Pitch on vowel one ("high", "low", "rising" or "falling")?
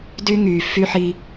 high